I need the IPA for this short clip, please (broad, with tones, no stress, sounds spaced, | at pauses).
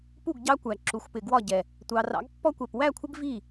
p u˥˩ ɡ ɟ ɑ˦ kʷ æ˨˩ ǁ u˩˧ xʷ p ɪ˨˩ ɡ w ɒ˥˩ ɟ ɛ˨˩ | tʷ ɑ˩˧ r ɑ̰˩˥ ɡ pː ɔ˦ kʷ ɛ˨˩ p w æ˥˩ kʷʰ ɪ˦ ɡ v i˥˩